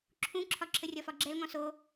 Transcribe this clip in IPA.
ǁʰ ũ ǁʰ ɒ ǁʰ ə rʲ ɒ f ɒ ɡ͡ǁ ɛ l ŋ ɔ̃ s o

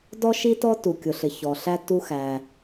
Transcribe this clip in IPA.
d ɔ˥ ʃ i˥ t ɔ˥ t u˩ kʲ ʊ˩ ɬ ɪ˩ ç ɔ˩ ɬ æ˥ t u˥ x æ˩

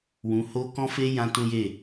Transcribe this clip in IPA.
w ũ˧ h o˧ k ɔ̃˦ f e˦ j ã˦ t ũ˦ j e˦˨

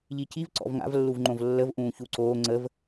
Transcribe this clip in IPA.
ʎ i c i v ǀ ɔ̰ v ŋ a̰ v lː u v ŋ͡ǃ õ v lː ə v ʔ ũː ç u ǀ oː ŋ͡ǀ ə v

